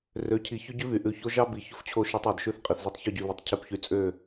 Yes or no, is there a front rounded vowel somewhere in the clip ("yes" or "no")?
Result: yes